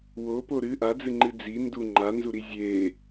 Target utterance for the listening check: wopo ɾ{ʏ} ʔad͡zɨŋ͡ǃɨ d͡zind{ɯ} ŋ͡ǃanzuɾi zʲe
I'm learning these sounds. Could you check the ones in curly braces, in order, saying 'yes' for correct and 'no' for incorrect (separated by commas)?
no, no